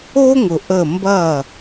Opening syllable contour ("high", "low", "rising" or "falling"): high